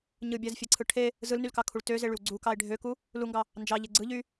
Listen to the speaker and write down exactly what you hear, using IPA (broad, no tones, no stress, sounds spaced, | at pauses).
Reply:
ɲ ɯ bʲ æ z fʲ e ǀʰ ɯ ʈʰ e | z ɯ l n y l k ɑ kʰ u ɭ t ø z e ɭ y w ɡ͡ǀ u k ɑ e̯ ɖʱ ø k u | l u ŋ ɡ ɑ | n d͡ʒ ɑ ʎ e ɡ͡ǀ ɯ ʎ y